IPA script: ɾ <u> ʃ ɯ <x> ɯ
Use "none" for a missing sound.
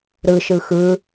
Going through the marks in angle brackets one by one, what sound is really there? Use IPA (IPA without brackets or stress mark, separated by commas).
ɯ, x